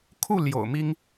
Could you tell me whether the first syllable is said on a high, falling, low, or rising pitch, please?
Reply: falling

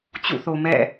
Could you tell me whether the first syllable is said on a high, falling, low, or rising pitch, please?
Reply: falling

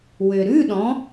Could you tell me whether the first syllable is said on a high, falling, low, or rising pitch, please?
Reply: low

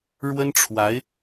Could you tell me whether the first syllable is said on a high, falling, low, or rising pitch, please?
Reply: high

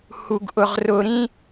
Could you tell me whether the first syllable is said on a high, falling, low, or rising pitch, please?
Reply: low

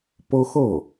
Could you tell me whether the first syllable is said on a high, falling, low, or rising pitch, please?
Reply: high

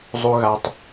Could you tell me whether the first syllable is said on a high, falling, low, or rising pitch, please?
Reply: low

